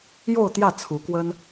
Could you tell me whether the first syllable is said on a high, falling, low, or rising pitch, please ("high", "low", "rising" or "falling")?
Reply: falling